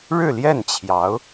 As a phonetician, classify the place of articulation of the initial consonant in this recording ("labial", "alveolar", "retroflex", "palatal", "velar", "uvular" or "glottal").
retroflex